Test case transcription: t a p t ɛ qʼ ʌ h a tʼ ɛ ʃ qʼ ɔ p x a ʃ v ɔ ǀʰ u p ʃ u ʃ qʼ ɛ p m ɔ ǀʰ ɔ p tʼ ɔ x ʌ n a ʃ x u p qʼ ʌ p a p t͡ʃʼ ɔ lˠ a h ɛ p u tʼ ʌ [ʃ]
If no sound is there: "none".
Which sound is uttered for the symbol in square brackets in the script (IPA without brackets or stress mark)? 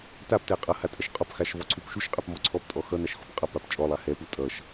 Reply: ʃ